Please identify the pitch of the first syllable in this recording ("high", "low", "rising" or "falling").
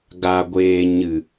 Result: low